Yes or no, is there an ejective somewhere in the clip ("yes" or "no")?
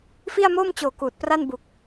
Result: no